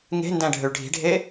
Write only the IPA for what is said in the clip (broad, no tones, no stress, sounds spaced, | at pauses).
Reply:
ŋ e̤ n d æ̃ ɖʱ ø ɭ ɖʱ i̤ ɖʱ e